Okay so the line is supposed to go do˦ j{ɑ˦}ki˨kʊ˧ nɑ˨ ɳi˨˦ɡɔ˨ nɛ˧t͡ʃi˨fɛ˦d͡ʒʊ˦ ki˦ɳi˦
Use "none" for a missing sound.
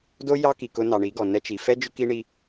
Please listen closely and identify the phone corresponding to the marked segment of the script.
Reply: ɑ˦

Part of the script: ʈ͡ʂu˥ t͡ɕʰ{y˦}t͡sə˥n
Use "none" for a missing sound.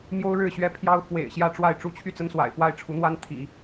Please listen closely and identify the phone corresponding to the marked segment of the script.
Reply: y˥˩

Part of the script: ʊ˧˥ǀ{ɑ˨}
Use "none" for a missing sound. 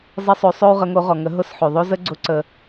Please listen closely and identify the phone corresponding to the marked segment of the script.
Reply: ə˨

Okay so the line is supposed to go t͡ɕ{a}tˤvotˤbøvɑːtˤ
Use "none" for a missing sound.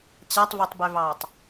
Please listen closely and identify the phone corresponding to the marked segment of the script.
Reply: a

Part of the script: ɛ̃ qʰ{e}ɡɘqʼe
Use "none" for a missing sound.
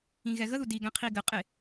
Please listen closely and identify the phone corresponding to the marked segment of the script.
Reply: i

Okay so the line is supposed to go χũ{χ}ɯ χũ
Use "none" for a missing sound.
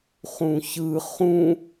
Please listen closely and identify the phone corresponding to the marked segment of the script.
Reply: ç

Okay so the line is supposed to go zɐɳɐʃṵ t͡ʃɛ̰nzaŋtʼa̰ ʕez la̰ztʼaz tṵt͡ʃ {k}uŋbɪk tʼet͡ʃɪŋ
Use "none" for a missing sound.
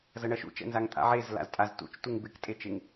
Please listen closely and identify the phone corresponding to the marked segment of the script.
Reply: t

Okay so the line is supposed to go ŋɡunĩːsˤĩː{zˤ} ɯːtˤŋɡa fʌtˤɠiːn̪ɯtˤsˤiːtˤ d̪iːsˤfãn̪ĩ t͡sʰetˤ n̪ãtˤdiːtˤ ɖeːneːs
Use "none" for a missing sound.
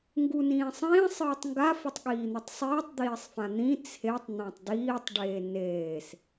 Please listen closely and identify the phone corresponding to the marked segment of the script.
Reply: sˤ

